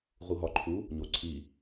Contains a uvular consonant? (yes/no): yes